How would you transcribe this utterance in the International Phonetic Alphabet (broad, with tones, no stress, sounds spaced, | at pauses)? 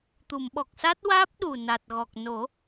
t̪ u˨˩˨ m ɓ ɔ˨˩ k̚ s a˦˥ t̚ w aː˦˥ p̚ ɗ u˨˩ n a˨˩ t̚ ɣ ɔ˨˩ k̚ n o˨˩˦